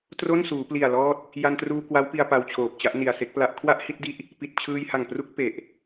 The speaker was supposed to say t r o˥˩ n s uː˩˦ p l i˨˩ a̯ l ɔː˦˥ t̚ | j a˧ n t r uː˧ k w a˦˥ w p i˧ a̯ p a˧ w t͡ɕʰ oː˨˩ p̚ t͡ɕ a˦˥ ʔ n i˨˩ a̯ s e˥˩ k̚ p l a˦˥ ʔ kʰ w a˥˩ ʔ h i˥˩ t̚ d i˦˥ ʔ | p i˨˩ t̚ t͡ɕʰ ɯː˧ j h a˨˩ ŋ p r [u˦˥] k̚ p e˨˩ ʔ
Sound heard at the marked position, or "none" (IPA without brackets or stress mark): u˦˥